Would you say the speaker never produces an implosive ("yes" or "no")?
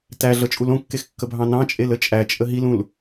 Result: yes